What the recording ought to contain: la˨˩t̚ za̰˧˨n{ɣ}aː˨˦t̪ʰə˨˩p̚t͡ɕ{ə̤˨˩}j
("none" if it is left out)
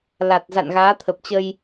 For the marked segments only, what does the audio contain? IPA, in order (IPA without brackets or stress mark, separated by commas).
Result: ɣ, ə˧